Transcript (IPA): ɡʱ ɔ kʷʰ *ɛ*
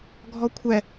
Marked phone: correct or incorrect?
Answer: correct